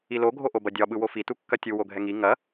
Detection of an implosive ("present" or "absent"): present